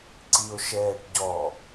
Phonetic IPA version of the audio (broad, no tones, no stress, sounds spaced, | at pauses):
ǀ i o̯ ʃ ɛː ʈ ɟ ɔ